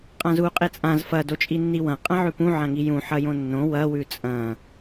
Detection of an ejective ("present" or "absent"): present